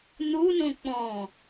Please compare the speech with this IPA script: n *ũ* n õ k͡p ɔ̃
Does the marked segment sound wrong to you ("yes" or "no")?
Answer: yes